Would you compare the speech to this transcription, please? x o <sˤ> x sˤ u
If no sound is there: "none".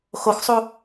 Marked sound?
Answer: none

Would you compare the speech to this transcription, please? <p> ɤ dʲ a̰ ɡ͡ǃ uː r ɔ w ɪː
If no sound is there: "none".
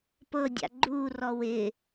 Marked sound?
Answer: p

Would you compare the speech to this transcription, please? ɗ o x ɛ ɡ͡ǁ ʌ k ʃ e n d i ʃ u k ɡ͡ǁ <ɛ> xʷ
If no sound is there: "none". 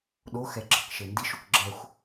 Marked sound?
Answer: ɛ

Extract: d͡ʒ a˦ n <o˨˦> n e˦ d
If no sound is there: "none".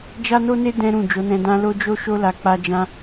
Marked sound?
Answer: o˦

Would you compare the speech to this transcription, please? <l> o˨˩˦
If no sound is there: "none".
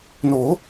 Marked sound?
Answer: n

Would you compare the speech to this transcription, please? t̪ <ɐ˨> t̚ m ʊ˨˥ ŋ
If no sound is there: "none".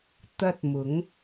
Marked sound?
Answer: ɐ˥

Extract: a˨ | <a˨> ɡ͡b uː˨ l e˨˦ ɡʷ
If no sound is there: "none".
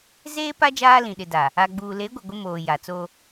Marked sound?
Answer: a˨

